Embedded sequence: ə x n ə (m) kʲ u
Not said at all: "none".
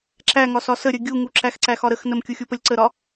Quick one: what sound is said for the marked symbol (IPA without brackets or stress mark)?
m